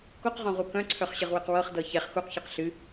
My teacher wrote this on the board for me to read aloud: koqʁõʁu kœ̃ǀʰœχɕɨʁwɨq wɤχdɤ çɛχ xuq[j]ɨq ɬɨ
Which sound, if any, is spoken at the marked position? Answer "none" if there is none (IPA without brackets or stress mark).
ç